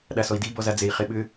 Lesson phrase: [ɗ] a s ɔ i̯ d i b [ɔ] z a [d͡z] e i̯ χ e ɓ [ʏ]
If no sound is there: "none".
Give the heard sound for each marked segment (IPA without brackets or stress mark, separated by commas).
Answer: ɗ, ɔ, d͡z, ʏ